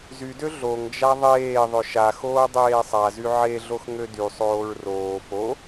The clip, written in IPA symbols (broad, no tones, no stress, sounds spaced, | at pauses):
z y d ø ɮ o ŋ d͡ʒ a ðˤ eː ðˤ ɵ ʃ a x oː dˤ eː sˤ a z y ʕ e ɮ o x ŋ ø d y sˤ oː ɹ r oː f o